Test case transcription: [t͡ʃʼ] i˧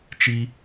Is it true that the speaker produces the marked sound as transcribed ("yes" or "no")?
no